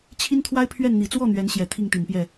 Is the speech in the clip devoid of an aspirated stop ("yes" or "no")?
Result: no